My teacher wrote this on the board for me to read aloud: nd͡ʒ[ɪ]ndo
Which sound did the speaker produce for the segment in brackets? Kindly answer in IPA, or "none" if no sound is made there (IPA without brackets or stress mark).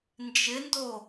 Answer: ɪ